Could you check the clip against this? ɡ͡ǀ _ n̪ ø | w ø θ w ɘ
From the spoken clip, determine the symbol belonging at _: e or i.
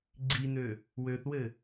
i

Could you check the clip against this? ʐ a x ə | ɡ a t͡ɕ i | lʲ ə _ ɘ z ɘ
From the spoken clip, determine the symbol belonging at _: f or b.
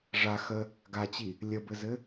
b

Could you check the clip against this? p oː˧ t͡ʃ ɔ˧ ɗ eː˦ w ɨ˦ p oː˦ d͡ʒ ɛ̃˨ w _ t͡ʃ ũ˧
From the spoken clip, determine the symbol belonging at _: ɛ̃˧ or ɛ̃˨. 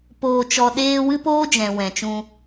ɛ̃˨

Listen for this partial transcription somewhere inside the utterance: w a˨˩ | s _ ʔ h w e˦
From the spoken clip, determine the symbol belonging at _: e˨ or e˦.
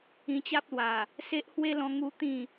e˦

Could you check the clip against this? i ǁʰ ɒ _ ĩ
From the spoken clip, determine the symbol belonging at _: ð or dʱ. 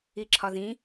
ð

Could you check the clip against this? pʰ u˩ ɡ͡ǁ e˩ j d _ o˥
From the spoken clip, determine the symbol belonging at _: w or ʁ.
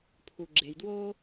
w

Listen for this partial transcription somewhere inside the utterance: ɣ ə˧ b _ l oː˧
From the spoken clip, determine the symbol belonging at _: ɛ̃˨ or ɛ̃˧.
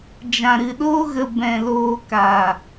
ɛ̃˨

